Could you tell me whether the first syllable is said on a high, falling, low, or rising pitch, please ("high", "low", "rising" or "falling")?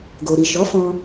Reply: low